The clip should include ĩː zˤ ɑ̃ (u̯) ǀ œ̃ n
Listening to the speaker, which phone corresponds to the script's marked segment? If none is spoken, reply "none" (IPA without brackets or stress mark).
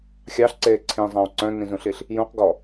u̯